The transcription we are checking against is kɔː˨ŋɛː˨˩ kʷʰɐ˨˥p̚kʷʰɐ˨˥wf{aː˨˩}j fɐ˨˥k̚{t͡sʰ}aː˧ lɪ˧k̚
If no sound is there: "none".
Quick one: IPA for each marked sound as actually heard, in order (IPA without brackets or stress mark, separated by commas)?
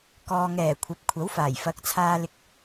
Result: aː˨˩, t͡sʰ